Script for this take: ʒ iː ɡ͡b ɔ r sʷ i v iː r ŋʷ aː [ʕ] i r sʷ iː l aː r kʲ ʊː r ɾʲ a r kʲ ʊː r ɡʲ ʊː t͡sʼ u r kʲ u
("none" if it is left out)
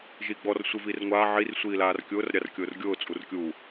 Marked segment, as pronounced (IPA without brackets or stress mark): ʕ